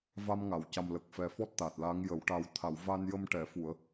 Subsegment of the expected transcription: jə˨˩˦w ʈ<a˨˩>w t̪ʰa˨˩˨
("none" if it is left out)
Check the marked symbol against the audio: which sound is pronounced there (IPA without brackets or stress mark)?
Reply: a˨˩